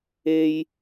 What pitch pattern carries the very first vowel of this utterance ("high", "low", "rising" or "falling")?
low